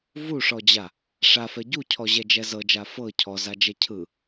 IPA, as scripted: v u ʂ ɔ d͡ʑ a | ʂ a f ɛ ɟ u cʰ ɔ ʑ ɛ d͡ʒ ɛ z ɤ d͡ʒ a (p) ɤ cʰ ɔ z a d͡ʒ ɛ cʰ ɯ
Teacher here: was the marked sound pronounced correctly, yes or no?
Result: no